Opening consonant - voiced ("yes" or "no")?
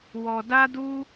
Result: yes